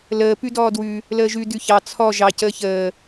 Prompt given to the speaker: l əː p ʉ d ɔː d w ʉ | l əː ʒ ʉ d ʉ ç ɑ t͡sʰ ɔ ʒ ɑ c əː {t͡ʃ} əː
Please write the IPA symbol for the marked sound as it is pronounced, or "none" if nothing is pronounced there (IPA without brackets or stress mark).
ç